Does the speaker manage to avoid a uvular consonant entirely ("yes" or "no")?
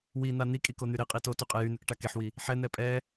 no